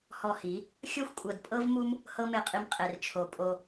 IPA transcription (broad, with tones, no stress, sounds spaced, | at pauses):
h ɔ˧ h i˨˦ | xʲ ɤ˦ xʷ kʷʼ ɤ˨ d pʼ ɤ˦ v m u˦ m | h ɤ˦ m e˧ qʼ i˧ m qʼ e˨ r t͡ʃʰ o˨ pʼ o˧